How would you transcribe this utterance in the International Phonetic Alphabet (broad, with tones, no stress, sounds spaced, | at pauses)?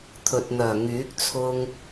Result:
t̪ʰ ɵ˨ t̚ n̪ œː˨˩ ŋ yː˨˥ k̚ t͡sʰ ʊ˥ ŋ